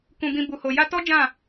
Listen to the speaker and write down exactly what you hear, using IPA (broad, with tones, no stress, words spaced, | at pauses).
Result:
kũ˧bĩ˧ bu˨ho˨ ja˧tɔ˦ d͡ʒã˦˨